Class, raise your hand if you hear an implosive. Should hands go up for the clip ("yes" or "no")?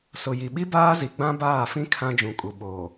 yes